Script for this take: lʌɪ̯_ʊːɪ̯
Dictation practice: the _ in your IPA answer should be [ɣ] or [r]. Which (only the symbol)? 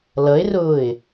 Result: r